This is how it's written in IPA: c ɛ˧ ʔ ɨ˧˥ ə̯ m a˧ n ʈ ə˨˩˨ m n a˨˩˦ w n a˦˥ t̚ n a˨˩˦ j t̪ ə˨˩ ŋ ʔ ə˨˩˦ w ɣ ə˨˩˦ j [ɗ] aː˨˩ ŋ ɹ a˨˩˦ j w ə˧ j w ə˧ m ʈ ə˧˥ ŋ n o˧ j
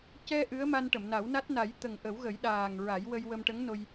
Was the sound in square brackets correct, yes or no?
yes